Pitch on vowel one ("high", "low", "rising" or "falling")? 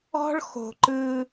high